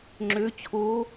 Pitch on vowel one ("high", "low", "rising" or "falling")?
rising